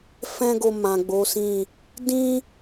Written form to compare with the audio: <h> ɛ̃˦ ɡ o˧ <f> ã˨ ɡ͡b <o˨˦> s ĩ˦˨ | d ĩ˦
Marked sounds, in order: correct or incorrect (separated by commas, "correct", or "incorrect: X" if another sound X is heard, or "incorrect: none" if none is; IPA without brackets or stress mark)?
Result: incorrect: f, incorrect: m, correct